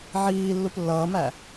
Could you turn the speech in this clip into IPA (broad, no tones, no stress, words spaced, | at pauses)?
ʕiː lːuplːʌːmæ